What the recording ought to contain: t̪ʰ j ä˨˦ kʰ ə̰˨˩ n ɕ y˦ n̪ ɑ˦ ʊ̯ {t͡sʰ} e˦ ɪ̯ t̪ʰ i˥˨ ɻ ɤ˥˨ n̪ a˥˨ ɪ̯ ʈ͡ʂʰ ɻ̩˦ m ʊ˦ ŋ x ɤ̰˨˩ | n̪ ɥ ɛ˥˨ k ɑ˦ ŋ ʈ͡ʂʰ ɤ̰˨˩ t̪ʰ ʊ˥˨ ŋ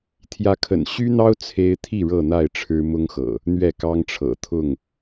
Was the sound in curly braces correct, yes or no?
yes